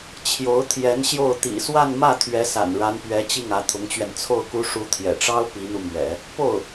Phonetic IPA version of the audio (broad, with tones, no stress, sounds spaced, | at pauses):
t͡ɕʰ j o˧˥ ʊ̯ t̪ʰ j ɛ˧˥ n ɕ j o˥˩ ʊ̯ t̪ ḭ˨˩ s w a˥˧ n m ä˥˩ t̪ʰ ɥ ɛ˧˥ s a̰˨˩ n ɻ a˧˥ n p ɥ ɛ˧˥ t͡ɕ i˥˩ ŋ ä˧˥ t̪ʰ ʊ˧˥ ŋ t͡ɕ ɥ ɛ˧ n t͡sʰ o˥˩ ʊ̯ k u˥ ʂ u˧˥ t̪ʰ j ɛ̰˨˩ ʈ͡ʂ ɑ˥ ʊ̯ p i˧˥ n̪ u˧ m ɥ ɛ̰˨˩˦ | p o˥˩ ʊ̯